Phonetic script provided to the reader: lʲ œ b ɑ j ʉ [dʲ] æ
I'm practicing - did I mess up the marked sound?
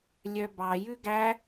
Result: yes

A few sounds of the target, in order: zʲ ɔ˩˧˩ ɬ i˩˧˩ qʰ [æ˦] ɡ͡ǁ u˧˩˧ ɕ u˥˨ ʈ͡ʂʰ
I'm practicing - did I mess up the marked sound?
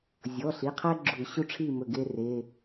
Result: no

